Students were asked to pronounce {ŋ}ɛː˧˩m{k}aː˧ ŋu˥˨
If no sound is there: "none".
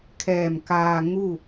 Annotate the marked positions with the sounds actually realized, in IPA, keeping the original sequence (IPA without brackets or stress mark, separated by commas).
kʰ, k